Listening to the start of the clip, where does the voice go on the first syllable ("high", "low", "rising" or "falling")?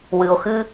low